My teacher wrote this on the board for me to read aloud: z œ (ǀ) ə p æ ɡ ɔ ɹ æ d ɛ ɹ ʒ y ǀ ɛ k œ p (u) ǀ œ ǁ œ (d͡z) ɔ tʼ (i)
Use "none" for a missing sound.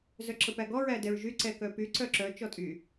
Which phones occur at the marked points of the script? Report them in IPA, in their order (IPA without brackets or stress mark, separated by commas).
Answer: ǁ, y, t͡ʃ, y